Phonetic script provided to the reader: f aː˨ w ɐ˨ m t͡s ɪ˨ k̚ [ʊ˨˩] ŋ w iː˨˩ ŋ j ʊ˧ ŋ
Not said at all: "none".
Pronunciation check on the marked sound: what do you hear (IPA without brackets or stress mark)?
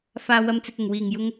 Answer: ʊ˨˩